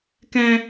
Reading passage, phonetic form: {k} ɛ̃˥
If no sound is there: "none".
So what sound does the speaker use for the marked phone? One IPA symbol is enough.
k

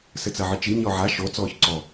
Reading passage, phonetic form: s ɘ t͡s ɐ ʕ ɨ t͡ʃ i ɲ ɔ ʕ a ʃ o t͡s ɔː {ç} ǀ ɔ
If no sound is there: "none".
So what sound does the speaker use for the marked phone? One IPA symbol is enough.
ç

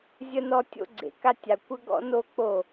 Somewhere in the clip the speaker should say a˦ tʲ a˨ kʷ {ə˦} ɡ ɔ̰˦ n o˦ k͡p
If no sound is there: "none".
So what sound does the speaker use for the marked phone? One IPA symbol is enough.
ə˦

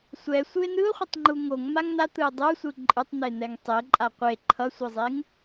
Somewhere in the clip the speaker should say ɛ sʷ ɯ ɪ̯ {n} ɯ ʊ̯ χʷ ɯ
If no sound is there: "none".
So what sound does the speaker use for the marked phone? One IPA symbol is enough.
n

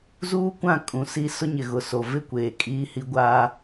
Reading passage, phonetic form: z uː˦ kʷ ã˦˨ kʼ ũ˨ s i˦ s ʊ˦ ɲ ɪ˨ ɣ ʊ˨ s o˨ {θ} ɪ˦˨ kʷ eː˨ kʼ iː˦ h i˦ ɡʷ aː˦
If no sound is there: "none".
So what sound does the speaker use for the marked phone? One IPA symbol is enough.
v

